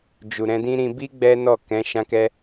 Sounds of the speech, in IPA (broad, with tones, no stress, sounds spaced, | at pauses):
d͡ʒ u˨ ɾ ɛ̃˧ d ĩ˦ ɾ ĩ˧ b i˦ ɡ͡b ɛ˦ n ɔ˦˨ k ɛ̃˨˦ ʃ ã˧ k ɛ˧